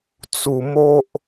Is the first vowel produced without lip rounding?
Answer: no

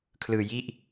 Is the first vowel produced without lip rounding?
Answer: yes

